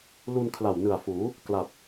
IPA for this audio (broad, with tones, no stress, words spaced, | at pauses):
lu˧n kʰla˨˩wnɯ˨˩a̯fuː˩˦ | kla˨˩t̚